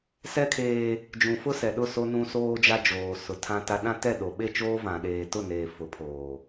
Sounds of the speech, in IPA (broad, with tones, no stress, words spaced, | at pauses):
sɛ˦kʰeː˦ | d͡ʒũ˨fʊ˦sɛ˨ɗʊ˦˨ so˦nũ˦soː˦d͡ʒa˦ d͡ʒoː˨sʊ˨ tʰã˦ta˦ ɗã˦tɛ˦˨ ɗo˨ɓe˦˨t͡ʃoː˦ vã˨ɗeː˨tʊ˦˨neː˨ fʊ˨˦pʰoː˨